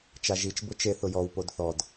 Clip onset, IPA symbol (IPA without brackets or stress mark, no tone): t͡ʃ